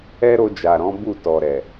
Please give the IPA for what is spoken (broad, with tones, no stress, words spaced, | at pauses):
ɛ˦ ɾo˧ d͡ʒa˨ɾɔ̃˨˦ bu˦˨tɔ˨ɾɛ˨